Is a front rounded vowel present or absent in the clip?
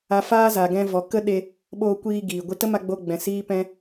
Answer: absent